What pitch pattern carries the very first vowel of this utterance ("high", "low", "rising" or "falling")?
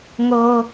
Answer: high